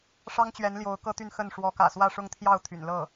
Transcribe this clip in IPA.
ʂ ɑ˥ ŋ t͡ɕ ɥ ɛ˧˥ n l j o˧˥ ʊ̯ k ɤ˥ t̪ y˥˧ n x ə˥˩ n ʂ w ɔ˧˥ k ä̰˨˩ s w ä˥˧ ʂ ʊ˥˧ ŋ t̪ʰ j ɑ˥˩ ʊ̯ t̪ʰ y̰˨˩ n l ɤ˥˩

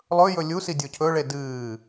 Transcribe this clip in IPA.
lˠ ɵ j ɵ lʲ u s i dʲ o cʰ ɵ ɭ e d ɨː

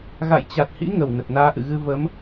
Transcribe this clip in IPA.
ɣ a̰˧˨ j t͡ɕ a˨˩ t̚ h ḭ˧˥ ŋ ə˨˩ w n ə˨˩ t̚ n aː˧ ʔ ɨ̰˧˨ ɣ ɨ˧ v ə˨˦ m

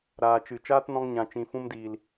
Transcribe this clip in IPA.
ɾ aː˨ t͡ʃ ɨ˨ t͡ʃ aː˦ t n ɔ̃˧ ŋ ɲ ã˨ t͡ʃ ĩ˨ f ũ˧ m d iː˨ l

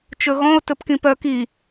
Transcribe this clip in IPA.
t͡ʃ ɵ ɣ ɔ̃ ʊ̯ t ɵ p k ĩ p œ k i

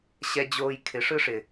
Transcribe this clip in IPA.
ɕ ɛ˦ d͡ʑ oː˦ j kʰ ɪ˨˦ ʂ ɯ˦ ʂ ɪ˨

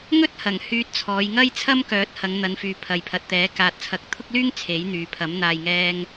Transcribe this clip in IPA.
ŋ ɵ˥ t̚ h ɐ˨˩ ŋ h yː˧ t̚ t͡sʰ ɔː˨˧ j ŋ ɐ˥ j t͡sʰ ɐ˥ m k œː˨˥ t̚ h ɐ˨˧ ŋ n̪ ɐ˨˧ n f yː˨ pʰ ɐ˨ j pʰ ɐ˨ t̚ t̪ ɛː˨˥ k aː˨ t̚ t͡sʰ ɐ˨˥ k̚ t̪ʰ ʊ˥ k̚ l yː˥ ŋ t͡sʰ e˨˥ j n̪ yː˨ pʰ ɐ˨˥ m n̪ aː˨ j ŋ ɛː˧ ŋ

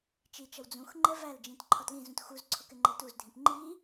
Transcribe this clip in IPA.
t͡ʃ i t͡ʃ ʌ w d͡z ũ x ŋ͡ǃ ɛ v æ l d͡ʒ ĩ t ǃʰ ɒ t l ĩ z ũ t x u z ǀʰ ʊ k ɪ ŋ͡ǃ ɛ t u z dʱ ĩ p ŋ͡ǃ i

